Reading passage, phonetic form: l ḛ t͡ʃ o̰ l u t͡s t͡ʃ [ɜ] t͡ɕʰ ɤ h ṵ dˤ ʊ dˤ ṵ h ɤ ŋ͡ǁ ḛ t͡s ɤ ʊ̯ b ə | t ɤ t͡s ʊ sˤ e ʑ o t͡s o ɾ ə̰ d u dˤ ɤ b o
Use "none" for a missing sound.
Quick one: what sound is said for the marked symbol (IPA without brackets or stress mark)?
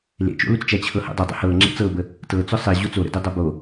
æ